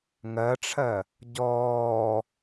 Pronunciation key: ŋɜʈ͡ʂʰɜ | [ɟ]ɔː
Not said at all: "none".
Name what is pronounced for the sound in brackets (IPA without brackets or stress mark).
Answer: ɟ